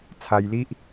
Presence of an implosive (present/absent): absent